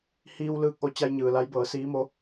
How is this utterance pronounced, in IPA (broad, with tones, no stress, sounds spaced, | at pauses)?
h iː˧ w l ɯː˧ k̚ ʔ o˧ t͡ɕ a˧ j ɲ ɯː˩ l a˧˥ j b ɤː˩˧ s iː˧˥ m o˧˥